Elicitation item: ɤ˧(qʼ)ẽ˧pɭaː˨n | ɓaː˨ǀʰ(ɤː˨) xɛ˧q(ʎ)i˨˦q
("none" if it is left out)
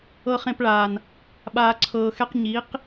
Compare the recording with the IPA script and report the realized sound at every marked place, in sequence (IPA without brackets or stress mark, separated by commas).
χ, ɤː˨, ɲ